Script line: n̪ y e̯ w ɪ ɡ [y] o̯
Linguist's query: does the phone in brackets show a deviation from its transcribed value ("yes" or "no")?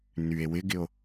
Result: yes